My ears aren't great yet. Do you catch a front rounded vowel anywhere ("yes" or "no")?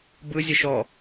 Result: no